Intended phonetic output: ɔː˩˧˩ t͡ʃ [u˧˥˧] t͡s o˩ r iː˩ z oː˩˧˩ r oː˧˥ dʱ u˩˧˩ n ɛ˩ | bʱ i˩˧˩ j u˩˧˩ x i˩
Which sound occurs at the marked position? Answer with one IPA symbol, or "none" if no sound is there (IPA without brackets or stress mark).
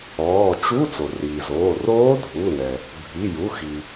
u˧˥˧